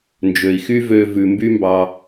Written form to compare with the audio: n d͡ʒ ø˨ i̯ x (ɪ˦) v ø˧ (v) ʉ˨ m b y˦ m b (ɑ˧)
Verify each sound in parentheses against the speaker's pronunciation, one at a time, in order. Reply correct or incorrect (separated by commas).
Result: incorrect, correct, correct